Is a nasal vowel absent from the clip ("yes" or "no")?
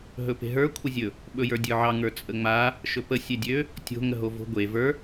yes